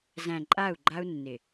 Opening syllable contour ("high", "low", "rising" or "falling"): low